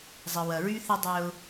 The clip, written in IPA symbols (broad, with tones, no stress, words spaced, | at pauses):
zˤə˨wɐ˨ɹy˦θɪ˦ dˤœ˦ʊ̯